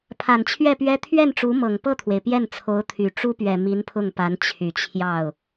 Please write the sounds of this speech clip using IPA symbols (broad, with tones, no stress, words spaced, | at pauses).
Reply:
pʰa˨˩nt͡ɕʰɥɛ˥˩pɥɛ˥ t̪ʰɥɛ˥˩n ʈ͡ʂu˧˥mɤ˨˩ŋpɤ˥˩t̪ʰwe˩ɪ̯ pjɛ˥˩nt͡sʰo˧˥ʊ̯t̪ʰy˨˩ ʈ͡ʂu˥pɥɛ˨˩ mi˧˥npʰʊ˥˩ŋpa˧˥n t͡ɕʰy˨˩t͡ɕʰjɑ˥˩ʊ̯